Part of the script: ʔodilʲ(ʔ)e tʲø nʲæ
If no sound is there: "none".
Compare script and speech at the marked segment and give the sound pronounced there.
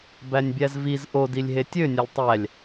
ɦ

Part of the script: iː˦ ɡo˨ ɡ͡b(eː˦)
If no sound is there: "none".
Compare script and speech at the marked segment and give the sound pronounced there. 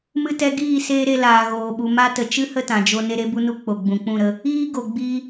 iː˦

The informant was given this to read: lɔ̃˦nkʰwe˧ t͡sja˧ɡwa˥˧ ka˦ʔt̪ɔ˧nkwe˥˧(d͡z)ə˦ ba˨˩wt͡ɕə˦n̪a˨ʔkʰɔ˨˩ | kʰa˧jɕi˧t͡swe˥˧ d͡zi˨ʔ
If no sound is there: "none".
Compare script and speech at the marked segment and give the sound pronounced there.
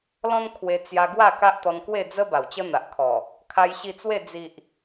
d͡z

